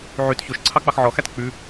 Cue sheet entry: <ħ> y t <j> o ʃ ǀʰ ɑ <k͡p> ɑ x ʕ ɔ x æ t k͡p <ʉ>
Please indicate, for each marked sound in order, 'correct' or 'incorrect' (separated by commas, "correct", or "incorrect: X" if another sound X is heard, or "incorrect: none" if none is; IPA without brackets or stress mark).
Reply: incorrect: ʕ, incorrect: ç, correct, correct